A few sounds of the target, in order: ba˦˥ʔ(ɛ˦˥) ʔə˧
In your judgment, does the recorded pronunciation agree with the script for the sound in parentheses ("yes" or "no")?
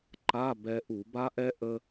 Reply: yes